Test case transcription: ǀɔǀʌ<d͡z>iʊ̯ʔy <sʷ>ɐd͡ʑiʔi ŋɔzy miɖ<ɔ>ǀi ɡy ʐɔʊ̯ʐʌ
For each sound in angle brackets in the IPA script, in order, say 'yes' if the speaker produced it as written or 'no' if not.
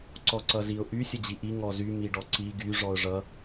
no, no, yes

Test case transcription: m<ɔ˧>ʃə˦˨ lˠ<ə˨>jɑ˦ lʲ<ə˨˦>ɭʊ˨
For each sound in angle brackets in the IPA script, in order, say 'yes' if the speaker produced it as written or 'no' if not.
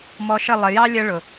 yes, yes, no

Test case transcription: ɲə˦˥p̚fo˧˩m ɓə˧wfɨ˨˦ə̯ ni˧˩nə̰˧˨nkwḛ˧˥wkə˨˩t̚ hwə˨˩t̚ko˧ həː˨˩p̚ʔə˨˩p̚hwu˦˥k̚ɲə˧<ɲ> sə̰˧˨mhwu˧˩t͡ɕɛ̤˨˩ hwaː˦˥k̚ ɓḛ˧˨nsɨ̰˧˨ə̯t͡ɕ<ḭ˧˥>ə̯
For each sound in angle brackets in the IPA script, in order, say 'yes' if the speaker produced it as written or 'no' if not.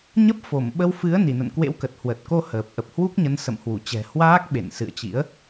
no, yes

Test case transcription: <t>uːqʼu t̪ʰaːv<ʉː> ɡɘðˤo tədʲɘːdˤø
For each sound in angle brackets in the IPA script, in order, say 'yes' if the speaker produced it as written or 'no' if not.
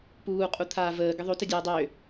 no, no

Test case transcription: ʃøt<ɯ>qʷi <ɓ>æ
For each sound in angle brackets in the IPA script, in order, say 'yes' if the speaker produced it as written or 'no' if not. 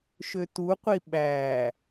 no, yes

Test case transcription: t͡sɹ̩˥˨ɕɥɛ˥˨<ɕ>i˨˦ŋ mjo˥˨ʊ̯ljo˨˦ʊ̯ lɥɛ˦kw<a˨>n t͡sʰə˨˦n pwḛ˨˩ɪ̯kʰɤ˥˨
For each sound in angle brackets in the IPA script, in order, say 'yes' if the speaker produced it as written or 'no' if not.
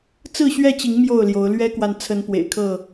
no, yes

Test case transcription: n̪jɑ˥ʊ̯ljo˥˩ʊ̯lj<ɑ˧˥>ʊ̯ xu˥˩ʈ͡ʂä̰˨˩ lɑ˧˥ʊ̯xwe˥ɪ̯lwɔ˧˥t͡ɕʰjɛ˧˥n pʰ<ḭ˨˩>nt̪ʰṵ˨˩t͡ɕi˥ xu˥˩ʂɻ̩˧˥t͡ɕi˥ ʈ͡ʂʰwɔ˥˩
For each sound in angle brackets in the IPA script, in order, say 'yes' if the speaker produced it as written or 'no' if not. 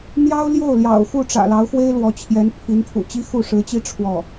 no, no

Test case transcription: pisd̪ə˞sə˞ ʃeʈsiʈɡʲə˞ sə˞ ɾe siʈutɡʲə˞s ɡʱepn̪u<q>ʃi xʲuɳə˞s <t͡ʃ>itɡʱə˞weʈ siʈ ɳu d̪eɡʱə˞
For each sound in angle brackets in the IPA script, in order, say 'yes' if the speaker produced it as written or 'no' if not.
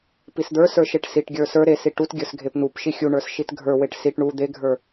no, no

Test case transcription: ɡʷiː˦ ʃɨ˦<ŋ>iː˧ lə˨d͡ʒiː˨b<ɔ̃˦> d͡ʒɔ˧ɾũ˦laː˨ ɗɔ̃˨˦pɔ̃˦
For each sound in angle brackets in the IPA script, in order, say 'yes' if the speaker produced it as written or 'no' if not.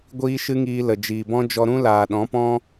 yes, yes

